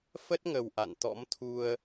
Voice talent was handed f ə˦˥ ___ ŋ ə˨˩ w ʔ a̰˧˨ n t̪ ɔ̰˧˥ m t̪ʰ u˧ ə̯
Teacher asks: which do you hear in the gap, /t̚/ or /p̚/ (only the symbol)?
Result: t̚